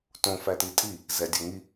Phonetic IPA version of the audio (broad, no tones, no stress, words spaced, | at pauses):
tõfæti tʼi | zɛdʲœŋi